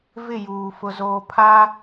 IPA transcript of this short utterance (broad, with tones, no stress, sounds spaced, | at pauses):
v ɪ˦˨ j uː˨ f ʊ˨ z oː˨ pʰ a˦